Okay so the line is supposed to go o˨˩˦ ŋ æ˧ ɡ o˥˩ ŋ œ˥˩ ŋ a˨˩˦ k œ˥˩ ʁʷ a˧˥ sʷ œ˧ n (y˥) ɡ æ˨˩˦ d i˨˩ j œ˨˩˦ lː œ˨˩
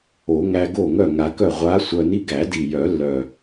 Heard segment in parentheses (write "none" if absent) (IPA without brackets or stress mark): i˥